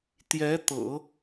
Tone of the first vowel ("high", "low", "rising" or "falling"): rising